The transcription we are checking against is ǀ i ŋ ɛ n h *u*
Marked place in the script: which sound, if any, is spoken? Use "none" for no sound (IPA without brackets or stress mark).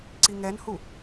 u